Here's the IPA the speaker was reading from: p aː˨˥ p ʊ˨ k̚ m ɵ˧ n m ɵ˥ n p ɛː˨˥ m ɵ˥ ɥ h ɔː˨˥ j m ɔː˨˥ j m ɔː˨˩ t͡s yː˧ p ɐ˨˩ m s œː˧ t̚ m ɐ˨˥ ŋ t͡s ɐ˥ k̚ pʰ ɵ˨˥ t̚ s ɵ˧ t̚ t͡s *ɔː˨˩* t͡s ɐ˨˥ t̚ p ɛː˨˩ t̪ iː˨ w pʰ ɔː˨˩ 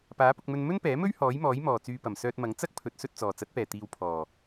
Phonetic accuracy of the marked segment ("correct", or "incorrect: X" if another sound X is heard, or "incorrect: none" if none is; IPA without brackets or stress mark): correct